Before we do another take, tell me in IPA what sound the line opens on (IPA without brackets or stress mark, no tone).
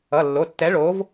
ʌ